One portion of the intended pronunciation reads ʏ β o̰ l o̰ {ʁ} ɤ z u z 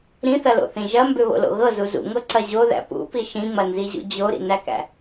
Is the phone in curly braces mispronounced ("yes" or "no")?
yes